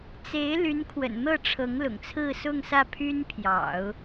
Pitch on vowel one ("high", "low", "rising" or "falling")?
rising